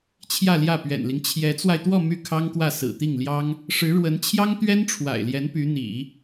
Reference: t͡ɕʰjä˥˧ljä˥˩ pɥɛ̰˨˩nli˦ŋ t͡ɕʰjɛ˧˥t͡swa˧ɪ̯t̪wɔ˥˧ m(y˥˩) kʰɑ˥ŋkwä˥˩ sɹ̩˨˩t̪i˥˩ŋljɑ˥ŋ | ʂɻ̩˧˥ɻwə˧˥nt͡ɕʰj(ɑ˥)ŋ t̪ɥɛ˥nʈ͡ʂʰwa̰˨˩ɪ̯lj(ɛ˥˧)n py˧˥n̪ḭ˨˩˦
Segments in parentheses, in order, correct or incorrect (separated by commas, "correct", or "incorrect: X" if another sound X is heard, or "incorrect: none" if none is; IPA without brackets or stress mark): correct, correct, incorrect: ɛ˧˥